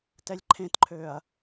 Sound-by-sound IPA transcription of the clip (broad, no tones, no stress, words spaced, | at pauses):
tɛlʲǃʰẽtǃʰøːɐ̯